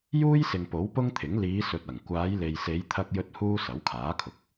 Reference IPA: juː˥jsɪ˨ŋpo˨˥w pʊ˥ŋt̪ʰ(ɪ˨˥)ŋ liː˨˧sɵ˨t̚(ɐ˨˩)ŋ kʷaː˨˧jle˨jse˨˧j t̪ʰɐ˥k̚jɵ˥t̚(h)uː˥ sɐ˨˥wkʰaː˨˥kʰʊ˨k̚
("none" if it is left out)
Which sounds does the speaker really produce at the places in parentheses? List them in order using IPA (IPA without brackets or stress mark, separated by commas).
ɪ˨˥, ɐ˨˩, h